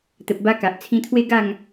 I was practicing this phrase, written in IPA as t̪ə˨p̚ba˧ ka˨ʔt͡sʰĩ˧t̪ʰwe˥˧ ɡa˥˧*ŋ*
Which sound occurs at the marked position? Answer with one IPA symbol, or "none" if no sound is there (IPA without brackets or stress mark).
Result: ŋ